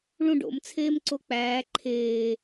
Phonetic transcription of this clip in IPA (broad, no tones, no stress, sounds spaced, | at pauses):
ɭ ũ ɖ o̰ m t͡sʰ eː m ǀ o k͡p æː ǃʰ eː